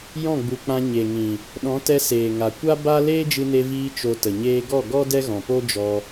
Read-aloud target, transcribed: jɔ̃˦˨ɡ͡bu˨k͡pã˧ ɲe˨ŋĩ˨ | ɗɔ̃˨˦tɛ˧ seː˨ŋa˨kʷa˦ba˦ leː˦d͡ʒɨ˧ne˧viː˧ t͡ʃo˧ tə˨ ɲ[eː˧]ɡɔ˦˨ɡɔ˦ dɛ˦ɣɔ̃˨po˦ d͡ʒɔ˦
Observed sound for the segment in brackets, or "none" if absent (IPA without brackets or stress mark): eː˧